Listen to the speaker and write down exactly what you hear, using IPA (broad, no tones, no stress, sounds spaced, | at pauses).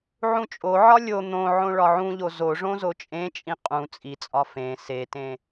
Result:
ʕ ũ t͡ʃʼ o ʕ ɒ lʲ o n̪ õ ʕ õ ɭ ɒ ʕ ũ ʎ o z o ʐ õ z o t͡ʃʼ ẽ t͡ʃʼ ĩ qʼ ũ t͡sʼ i t͡sʼ ɒ f ẽ s e t ẽ